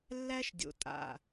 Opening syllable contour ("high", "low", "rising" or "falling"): high